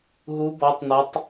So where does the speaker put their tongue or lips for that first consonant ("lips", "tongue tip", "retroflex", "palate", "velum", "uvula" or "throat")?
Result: throat